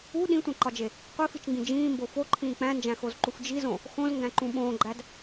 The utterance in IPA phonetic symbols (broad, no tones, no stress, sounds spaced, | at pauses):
u ɗ ĩ tʷ ẽ ǃ ɒ d͡ʒ e | qʷ i f i t͡ʃ ŋ ɡ ĩ d͡ʒ ĩː m b o f o ǃʰ ĩː k͡p æ̃ n d͡ʒ æ̃ x o z ǃ u f d͡ʒ i z õ | x õ z ŋ ɡ æ̃ ǃ ũ ɓ õː ɡ͡ǃ æ d